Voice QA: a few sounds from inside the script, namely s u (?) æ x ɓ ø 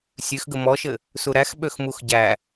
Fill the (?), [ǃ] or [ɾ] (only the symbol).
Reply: ɾ